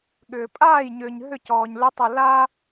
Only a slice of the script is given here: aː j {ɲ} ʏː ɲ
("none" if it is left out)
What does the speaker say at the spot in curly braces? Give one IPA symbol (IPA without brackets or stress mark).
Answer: ɲ